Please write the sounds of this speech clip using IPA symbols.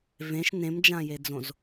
v ẽ ʃ n ẽ m d͡ʒ ã j e d͡z õ z

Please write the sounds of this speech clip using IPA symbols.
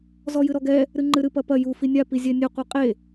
z ɔ j ɨ ɾ ɔ ɡ ɛ | ɾ ɨ ŋ͡ǃ ɨ ɾ ɨ p ɐ p ɐ j u f i nʲ a p i zʲ ɛ nʲ ɨ qʷ e qʼ e

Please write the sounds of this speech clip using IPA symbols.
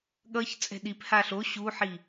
ɠ ʌ ç t͡sʼ ɛ̤ ɗ i p h aː ɬ o ɕ uː ħ i

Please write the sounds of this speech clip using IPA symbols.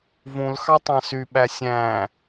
v ũ l x ɑ tˤ ɑ̃ s y ɓ æ sʲ æ̃

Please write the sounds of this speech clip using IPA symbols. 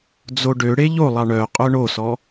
d͡z o ɖ ø ɽ e ʎ o lˠ ɑ ɳ œ qʼ œ ɳ o s ɔ

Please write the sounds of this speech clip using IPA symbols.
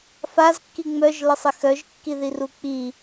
f a z kː i ŋ͡m œ ʒ l ə sˤ ɪ x œ ʒ kː i ð i r u k͡p i

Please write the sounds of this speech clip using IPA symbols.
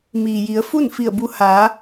m iː˩ j i˩˧ ə̯ f u˥˨ n f i˧˩ ə̯ b u˧ h aː˩˧

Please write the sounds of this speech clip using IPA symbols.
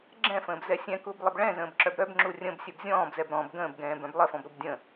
ɡ͡ǁ ɛ̃ f ə̃ː b z ɛ sʲ ɛ̃ k u b lˠ ə b ɭ ɛ̃ z ə̃ː b ǁ œ b ɾ œ b ŋ͡ǁ u rʲ ə̃ b sʲ ɛ b zʲ ɔ̃ː b z ɛ b ɾ ɔ̃ b ɡ ə̃ː b ɡ ɛ̃ː b œ̃ b lˠ ə f ɔ̃ b ɾ u b dʲ ə̃

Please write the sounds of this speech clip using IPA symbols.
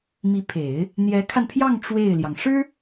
m i˧˥ pʰ e˨˩˦ ɪ̯ | n̪ j ɛ˧˥ kʰ a˧ n pʰ j ɑ˥˧ ŋ ʈ͡ʂ w e˥˩ ɪ̯ l j ɑ˩ ŋ ʂ ɻ̩˥

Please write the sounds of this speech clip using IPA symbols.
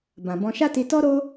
b ã˨ b ɔ̃˧ ʃ a˦ t i˧ t ɔ˦ ɾ o˦

